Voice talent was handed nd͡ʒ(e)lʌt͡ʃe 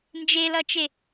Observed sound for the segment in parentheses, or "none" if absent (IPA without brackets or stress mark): e